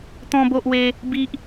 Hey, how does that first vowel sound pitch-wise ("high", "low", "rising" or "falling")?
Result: high